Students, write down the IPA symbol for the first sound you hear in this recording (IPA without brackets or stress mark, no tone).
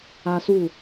a